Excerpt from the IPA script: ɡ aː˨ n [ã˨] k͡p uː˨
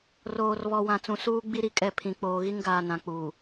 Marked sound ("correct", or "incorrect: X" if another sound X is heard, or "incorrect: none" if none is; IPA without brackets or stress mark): correct